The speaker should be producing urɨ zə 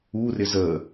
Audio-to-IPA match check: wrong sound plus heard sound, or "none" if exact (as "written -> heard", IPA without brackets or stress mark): ɨ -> ɪ